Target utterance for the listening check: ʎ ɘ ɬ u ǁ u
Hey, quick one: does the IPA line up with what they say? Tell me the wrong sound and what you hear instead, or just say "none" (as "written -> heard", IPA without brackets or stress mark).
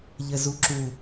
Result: ɬ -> z